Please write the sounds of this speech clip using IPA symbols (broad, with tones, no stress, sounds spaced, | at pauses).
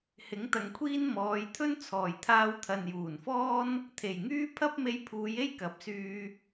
h ɪ˨˥ ŋ t̪ ɐ˨ ŋ kʷʰ iː˥ n m ɔː˨˧ j t̪ʰ ɵ˥ n t͡sʰ ɔː˨˩ j t̪ʰ aː˧ w t̪ʰ ɐ˨ n j uː˨˩ n f ɔː˥ n | t̪ʰ e˨˩ j ŋ yː˥ pʰ ɐ˥ p̚ m e˧ j pʰ uː˨˧ j e˥ j k ɐ˨˥ p̚ s yː˧